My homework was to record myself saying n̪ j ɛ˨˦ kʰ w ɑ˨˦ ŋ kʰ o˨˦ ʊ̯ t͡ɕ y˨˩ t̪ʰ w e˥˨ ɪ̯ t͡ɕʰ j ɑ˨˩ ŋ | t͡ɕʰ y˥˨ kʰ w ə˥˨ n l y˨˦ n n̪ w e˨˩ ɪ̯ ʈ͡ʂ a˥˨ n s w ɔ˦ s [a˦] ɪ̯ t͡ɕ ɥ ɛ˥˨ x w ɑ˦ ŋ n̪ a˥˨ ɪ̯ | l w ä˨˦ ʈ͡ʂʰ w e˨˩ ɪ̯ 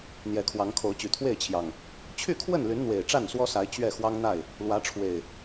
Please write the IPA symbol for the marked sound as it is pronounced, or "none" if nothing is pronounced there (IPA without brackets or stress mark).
a˨˦